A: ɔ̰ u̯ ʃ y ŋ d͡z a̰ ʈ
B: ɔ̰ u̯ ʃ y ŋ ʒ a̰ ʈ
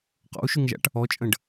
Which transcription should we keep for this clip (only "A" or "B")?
B